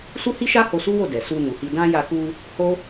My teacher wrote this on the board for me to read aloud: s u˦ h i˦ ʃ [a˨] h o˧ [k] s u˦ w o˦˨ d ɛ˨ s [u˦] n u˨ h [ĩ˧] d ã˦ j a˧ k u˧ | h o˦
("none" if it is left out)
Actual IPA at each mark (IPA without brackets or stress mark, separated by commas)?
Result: a˦, none, u˧, i˧